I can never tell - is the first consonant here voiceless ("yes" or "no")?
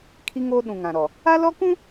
yes